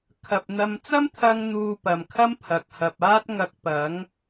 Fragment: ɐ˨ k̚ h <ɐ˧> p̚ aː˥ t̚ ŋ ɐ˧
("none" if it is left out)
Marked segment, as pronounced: ɐ˨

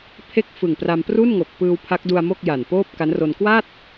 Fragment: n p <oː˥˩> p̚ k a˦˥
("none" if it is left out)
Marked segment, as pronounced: oː˥˩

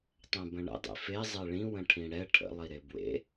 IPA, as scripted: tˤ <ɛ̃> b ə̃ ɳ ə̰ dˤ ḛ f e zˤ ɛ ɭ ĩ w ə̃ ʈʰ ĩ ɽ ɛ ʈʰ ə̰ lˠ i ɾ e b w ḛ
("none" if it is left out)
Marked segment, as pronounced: ɛ̃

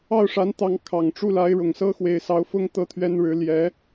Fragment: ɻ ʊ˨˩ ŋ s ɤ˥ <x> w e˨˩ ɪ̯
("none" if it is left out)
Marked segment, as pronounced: x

